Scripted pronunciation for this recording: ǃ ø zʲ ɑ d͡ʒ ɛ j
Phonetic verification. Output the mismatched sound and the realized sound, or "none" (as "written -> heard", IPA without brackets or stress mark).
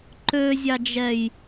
none